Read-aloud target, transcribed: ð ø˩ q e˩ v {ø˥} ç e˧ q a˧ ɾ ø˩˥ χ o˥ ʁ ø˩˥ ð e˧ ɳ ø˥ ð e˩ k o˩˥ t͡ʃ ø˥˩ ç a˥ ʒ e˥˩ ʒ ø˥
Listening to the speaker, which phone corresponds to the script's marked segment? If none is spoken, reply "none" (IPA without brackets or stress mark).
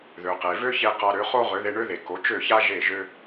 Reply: ø˥